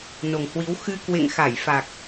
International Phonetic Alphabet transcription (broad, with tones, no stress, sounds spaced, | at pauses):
n o˨˩ ŋ h w i˨˦ w x ɨ˧ k w ḛ˧˨ ŋ x a˧˩ j f a˨˩ k̚